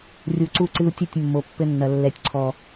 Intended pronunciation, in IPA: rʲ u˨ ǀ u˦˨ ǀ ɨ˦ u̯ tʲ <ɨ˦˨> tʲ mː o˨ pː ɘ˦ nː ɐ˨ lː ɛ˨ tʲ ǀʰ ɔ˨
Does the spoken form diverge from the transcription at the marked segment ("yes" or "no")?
no